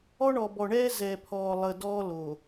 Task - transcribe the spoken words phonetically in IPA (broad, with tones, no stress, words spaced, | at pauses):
ɔ˦ɳɔ˨bɔ˨ɳɛː˦ zɛ˨pʰɔː˨lˠəː˨ dɔː˦loː˨